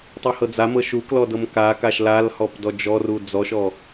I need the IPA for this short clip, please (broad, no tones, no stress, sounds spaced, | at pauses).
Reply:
tˤ u h ɤ d͡z a m ɤ ʃ u k l ɔ d ɤ m k a k a ʃ l a l h ɔ p d ɔ d͡ʒ ɔ r u d͡z ɔ ʃ ɔ